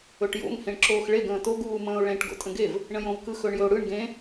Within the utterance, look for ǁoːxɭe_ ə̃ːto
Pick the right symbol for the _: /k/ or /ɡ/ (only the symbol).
ɡ